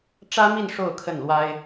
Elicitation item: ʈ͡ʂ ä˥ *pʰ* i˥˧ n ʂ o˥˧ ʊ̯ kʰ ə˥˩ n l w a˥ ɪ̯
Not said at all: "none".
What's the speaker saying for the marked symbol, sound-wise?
m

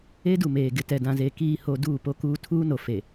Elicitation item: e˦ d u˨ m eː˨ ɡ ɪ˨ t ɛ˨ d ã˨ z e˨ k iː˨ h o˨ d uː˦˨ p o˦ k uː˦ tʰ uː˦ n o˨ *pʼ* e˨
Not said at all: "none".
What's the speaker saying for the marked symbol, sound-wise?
f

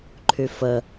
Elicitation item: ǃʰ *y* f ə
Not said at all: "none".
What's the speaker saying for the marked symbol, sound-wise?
y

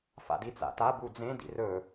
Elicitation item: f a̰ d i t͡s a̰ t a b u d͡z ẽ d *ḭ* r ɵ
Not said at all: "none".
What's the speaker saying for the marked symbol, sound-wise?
ḭ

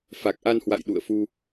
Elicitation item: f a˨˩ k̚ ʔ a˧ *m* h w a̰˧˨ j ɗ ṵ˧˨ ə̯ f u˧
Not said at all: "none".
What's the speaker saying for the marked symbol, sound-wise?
n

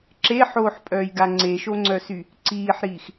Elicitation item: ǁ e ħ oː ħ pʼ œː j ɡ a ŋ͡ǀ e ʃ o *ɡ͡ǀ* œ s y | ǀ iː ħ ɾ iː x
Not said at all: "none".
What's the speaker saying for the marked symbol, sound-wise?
ŋ͡ǀ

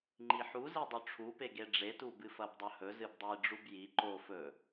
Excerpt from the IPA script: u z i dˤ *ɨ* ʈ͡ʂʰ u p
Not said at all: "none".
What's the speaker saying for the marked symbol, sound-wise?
ʉ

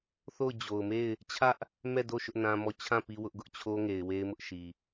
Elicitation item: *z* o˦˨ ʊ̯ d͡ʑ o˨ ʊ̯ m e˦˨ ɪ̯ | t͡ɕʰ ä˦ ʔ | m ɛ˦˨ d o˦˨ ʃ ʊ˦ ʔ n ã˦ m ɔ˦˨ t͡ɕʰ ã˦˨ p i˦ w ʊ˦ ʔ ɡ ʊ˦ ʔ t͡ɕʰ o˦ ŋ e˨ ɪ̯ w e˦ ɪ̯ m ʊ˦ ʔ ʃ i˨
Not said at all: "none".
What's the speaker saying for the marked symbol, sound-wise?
θ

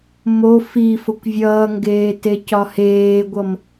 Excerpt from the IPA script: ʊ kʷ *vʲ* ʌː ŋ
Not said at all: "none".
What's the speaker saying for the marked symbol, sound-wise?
vʲ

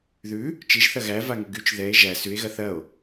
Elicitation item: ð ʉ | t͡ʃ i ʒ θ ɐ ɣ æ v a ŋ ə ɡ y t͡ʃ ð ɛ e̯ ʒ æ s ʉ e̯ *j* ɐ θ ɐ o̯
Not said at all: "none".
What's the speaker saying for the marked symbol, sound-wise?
ɣ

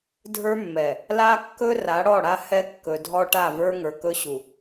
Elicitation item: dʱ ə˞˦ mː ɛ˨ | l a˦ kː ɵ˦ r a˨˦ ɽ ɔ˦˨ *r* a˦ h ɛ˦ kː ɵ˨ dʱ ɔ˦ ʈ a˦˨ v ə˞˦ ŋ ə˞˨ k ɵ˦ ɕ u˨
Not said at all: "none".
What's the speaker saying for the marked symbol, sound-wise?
ɽ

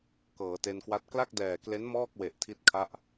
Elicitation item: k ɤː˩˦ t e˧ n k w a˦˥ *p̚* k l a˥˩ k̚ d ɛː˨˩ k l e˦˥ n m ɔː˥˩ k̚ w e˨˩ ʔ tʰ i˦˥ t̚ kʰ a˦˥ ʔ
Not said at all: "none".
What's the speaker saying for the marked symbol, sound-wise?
t̚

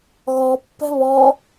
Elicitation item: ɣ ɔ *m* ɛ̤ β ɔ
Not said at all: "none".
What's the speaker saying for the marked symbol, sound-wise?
pː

